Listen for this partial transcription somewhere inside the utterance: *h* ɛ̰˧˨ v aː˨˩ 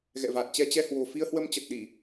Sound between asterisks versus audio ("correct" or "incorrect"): incorrect